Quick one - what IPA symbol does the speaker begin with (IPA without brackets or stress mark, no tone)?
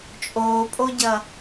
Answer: t͡ʃʼ